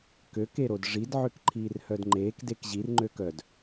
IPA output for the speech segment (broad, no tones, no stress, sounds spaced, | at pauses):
k ø k e ɾ o d ʐ i d ʕ ø k ǃʰ iː r h œ d ŋ͡ǃ eː k d e k ʑ i r ŋ͡ǃ ø k œ d